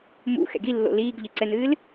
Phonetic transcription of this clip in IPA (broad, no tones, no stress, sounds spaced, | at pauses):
m ṵ x ɛ̰ ɡ i lː o̰ l iː ɡ ʎ ɨ ǀ ɛ n̪ ɨː l